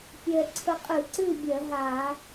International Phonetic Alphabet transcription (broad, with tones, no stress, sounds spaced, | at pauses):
pʲ ɛ˧ ǀʰ ə˧ qʼ ɨ˧˩˧ ǀ ɨ˥˨ bʲ ɜ˧˩˧ ɦ a˧˩˧